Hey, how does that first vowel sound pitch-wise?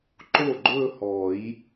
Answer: falling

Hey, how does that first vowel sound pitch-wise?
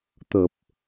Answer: low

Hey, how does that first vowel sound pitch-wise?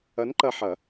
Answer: rising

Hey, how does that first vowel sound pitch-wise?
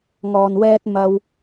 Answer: low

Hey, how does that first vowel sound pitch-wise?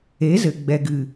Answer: rising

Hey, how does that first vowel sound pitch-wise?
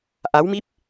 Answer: rising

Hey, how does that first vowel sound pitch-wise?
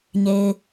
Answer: low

